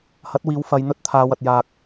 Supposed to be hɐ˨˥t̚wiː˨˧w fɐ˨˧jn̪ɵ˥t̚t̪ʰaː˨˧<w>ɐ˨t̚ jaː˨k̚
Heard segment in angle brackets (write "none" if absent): w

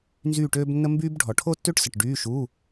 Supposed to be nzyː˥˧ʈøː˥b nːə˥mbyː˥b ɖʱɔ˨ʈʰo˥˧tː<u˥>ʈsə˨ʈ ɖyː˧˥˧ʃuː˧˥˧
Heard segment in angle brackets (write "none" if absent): ø˥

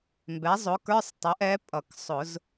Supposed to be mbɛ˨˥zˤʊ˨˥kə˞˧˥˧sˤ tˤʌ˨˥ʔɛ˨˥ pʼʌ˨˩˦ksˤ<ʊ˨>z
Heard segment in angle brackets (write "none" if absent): ʊ˨˩˦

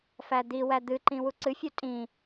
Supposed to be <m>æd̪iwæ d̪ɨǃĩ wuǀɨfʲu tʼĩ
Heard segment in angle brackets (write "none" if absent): f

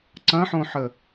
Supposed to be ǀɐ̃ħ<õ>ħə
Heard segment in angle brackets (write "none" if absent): õ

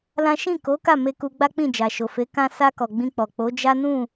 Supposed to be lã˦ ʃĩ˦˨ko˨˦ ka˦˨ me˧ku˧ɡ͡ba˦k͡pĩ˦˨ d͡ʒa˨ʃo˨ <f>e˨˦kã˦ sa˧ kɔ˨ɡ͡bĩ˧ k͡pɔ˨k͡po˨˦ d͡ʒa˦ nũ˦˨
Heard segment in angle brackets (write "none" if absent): f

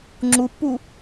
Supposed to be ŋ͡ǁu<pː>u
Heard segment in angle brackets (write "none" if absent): pː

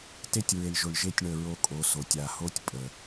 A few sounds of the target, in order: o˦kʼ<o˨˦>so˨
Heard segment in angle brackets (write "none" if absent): o˨˦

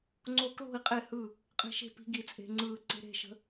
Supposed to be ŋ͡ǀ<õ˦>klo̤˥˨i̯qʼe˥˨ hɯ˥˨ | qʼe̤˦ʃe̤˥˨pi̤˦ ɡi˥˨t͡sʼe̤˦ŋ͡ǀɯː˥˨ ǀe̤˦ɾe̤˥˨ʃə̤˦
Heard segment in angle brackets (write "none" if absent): o˦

